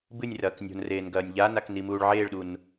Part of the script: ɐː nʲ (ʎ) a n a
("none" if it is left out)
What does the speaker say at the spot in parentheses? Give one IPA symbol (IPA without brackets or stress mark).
ʎ